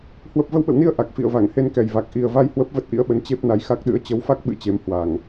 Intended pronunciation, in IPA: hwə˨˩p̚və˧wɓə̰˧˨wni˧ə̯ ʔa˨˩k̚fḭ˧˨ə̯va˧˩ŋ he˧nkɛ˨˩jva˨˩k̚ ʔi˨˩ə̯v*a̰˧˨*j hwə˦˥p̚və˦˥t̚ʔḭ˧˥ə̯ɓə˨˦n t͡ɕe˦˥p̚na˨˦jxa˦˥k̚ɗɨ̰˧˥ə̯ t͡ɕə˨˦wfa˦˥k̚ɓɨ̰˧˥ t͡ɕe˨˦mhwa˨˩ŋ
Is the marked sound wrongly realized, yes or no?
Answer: yes